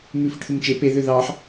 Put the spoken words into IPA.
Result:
m ʉ f i ʈ θ u m t͡ʃ e p e ð ø ð ɑ ħ

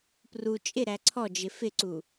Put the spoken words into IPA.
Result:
p r u t͡ʃʼ ɪ ɾ æ ǀʰ ɔ d͡ʒ ɪ f ɪ ǀ u

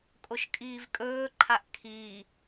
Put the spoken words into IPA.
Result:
kʼ o ʃ kʼ iː v kʼ ɵː ǃʰ a ʔ kʰ iː

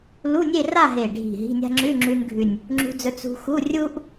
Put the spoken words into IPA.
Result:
l u˧˥˧ nʲ e˥˧ r a˥˧ ɦ e˨˩ ɖʱ i̤˨˩ ɦ i̤˧˥˧ nʲ a̤˥ ŋ͡ǁ ʉ˧˥˧ ŋ͡ǁ ʉ˧ n ɡʱ ʉ˨˩ nʲ | ŋ͡ǁ ṳ˧ d͡z ɵ˧ t͡s ṳ˧ x u˧˥˧ rʲ u˥ ʔ

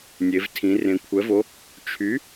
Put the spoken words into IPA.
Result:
nʲ e˩˧ v tʰ ĩ˩˧ r ẽ˩˧ kʷʰ ɛ˩˥ v o˩˥ | t͡ʃʰ y˩˥

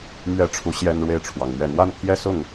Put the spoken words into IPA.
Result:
m ɥ ɛ˥˨ ʈ͡ʂʰ u˨˦ ɕ j ɛ˦ n ɻ w e˥˨ ɪ̯ ʈ͡ʂʰ w ɑ˩ ŋ n̪ ɥ ɛ˨˩ n̪ w a˦ n pʰ j ɛ˦ s ʊ˥˨ ŋ

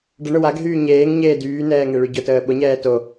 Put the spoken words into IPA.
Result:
ɖ ə ɳ ʊ w a ɡ ɦ yː ɲ eː ŋ ɲ eː d yː n ɛː ŋ e ɭ y ɟ ʊ t əː ɓ ʊ ɲ ɛː t o

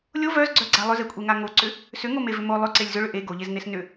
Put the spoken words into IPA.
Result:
lʲ o v œ z ɡ͡ǀ œ ɡ͡ǀ a lˠ ʏ z e kʷʼ e ŋ a ŋ o ǀ ʏ | s ʏ ŋ o m e v ʏ m o lˠ ʏ ǀ e lʲ z ʏ ɭ ʏ ʔ e ɡ o ʎ e z n e s n ʏ

